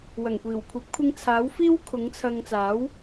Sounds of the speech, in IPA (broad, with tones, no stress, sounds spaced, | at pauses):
w ɐ˨˩ ŋ kʷ iː˨˩ w kʷʰ ɐ˨˥ p̚ kʷʰ ɪ˧ ŋ t͡sʰ aː˨˥ w f iː˥ w kʰ ʊ˨˥ ŋ t͡sʰ ɐ˧ ŋ t͡s aː˨˥ w